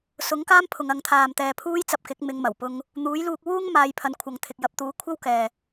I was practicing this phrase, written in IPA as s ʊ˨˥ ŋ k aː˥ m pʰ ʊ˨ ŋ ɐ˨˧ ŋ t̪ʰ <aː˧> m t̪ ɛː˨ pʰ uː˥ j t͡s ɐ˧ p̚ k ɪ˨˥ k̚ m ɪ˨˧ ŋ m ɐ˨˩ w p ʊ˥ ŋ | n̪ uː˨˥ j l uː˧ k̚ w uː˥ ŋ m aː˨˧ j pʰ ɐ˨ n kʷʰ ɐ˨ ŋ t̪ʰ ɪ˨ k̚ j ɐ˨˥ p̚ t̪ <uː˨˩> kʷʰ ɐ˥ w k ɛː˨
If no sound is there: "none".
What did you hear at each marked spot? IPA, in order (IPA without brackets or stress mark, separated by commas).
aː˨, uː˨˥